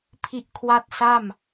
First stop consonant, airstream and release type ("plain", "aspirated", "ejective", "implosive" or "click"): aspirated